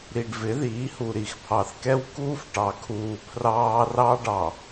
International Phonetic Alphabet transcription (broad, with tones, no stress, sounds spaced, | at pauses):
ɾ i˨ ɖ v ɪ˨˦ ð iː˨˦ h u˨ ɾ i˨ x pʰ ɑ˨ θ k ɛ˦ w k uː˦ f ʈ ɑ˨ kʰ uː˨ pʰ r ɑː˦ r ɑ˦ ɖ ɑ˨